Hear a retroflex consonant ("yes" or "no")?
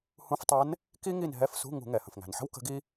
no